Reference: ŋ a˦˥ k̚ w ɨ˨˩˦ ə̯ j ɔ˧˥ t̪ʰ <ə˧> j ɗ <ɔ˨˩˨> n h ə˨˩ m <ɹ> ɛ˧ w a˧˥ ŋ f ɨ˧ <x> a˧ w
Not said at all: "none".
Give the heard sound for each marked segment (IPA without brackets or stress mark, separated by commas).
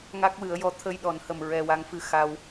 ə˧, ɔ˨˩˨, ɹ, x